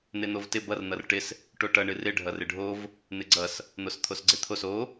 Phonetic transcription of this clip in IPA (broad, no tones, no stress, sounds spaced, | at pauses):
n̪ e n̪ o v t ɪ b ʌ r n̪ ʌ r ʈ ɪ s | ʈ o ʈ ʌ ɳ ɨ r ɪ ɖʱ ʌ r ɪ ɖʱ o v | n̪ ɪ ɡ͡ǀ ʌ s | n̪ o s t̪ʰ o s ɡ͡ǀ e t̪ʰ o s o